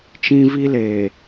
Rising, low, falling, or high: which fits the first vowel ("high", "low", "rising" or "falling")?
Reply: high